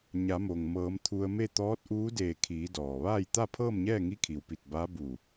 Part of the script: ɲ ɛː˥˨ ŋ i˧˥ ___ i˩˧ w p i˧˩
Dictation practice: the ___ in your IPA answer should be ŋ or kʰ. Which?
kʰ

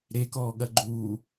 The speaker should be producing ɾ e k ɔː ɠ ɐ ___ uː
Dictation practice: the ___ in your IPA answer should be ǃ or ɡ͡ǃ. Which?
ɡ͡ǃ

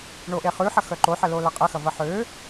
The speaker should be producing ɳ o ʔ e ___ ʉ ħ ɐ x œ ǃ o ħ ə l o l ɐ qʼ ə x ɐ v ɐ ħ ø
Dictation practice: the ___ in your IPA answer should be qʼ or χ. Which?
χ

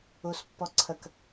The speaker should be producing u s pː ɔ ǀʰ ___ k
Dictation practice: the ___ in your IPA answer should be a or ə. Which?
ə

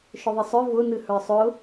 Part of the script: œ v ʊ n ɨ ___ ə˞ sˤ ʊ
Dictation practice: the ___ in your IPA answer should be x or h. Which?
h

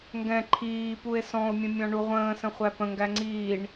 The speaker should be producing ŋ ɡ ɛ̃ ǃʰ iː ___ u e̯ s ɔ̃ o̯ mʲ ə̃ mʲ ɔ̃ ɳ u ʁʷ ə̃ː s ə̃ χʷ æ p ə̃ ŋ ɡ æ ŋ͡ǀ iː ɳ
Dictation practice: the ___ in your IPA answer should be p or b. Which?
p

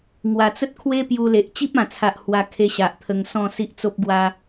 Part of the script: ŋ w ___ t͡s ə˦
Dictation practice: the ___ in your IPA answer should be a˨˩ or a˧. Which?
a˨˩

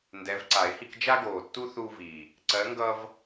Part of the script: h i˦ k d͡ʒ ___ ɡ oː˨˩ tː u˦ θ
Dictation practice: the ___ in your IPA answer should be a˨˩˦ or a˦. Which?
a˦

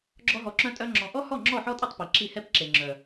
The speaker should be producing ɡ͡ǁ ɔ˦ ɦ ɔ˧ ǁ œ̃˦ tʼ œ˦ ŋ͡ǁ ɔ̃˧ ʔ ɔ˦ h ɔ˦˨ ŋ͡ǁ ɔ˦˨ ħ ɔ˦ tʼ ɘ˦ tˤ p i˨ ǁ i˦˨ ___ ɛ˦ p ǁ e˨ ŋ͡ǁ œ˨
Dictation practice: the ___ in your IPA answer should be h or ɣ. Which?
h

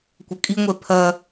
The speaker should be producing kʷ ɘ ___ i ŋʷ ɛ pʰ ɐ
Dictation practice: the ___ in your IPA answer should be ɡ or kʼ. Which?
kʼ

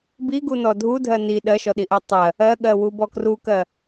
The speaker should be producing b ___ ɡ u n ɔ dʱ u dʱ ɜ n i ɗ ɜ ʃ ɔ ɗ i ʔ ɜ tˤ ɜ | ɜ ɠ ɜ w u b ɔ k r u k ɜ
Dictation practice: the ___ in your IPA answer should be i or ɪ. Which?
i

